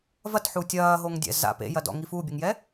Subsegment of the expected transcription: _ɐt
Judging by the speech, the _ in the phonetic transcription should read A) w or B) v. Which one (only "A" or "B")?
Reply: B